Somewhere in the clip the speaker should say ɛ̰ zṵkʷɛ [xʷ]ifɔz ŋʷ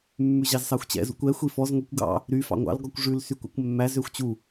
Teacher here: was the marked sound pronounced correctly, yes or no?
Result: yes